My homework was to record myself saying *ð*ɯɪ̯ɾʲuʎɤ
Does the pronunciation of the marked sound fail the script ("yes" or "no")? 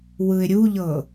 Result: yes